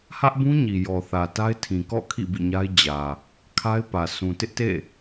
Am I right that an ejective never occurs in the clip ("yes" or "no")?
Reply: yes